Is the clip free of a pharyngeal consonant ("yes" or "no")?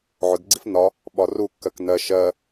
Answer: no